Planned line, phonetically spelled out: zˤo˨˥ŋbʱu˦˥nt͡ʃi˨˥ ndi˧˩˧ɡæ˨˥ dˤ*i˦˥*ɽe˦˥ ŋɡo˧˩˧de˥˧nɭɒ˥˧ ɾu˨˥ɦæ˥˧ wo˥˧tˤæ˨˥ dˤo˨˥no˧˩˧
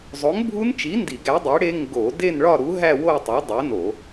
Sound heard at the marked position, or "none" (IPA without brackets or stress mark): i˨˥